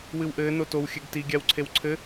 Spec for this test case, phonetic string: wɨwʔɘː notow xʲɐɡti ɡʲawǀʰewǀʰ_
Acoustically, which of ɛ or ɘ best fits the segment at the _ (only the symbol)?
ɘ